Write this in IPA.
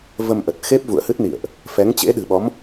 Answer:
v ə˧ m ʔ ə˨˩ t̚ x e˦˥ p̚ v ṵ˧˨ ə̯ h ɨ˦˥ t̚ n ḭ˧˨ ə̯ ʔ | f ɛ˨˦ ŋ t͡ɕ ḛ˧˥ ɗ ɨ̤˨˩ ɓ ɔ˨˦ m

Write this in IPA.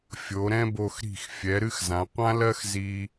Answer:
fʲ o˩˧ ɾ ɛ̃˥ b o˧ x ɾ i̤˧˩ x fʲ ɛ˩˧ ɾ ɨ˥˧ x z ã˩˧ qʷ ã˥ l ɜ˥ x z i˧

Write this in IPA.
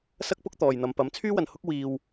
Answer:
s ɐ˥ k̚ p ʊ˥ k̚ t̪ ɔː˨ j n̪ ɐ˨˧ m p ɐ˨˥ m t͡sʰ yː˥ w ɐ˨ n h ʊ˥ k̚ w iː˧ w

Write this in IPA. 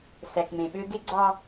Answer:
s æ˨ k m ẽ˨ ɓ ø˦ ɡ e˦ ɡ͡ǀ ɑ˦

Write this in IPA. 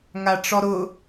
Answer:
ŋ a ʈ͡ʂ ɔ ɾ ʊ

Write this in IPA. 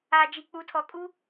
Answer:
a˨ d͡ʒ i˨ k͡p u˨˦ tʰ ɔ˨ kʼ u˦

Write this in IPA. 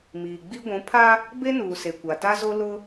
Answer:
m iː˨ ɡ͡b i˦ ɡʷ ũ˨˦ pʰ a˦ | b e˦ n uː˨ s e˨ kʷ a˨ t a˦ z o˦ l ʊ˦

